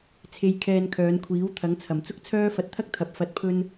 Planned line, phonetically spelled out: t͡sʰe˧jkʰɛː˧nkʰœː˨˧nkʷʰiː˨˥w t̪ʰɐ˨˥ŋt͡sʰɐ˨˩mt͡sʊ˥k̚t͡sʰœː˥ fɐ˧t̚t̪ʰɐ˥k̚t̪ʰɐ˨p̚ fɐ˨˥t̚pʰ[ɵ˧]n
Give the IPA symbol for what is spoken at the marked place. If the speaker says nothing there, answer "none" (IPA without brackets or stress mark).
ɵ˧